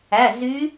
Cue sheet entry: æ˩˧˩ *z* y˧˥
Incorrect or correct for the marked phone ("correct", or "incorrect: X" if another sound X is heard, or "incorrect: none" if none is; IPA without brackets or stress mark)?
correct